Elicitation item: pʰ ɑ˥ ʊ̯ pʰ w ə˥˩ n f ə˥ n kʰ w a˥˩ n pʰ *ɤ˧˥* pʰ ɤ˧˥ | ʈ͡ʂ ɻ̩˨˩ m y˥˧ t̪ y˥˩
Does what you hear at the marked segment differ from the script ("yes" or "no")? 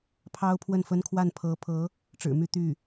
no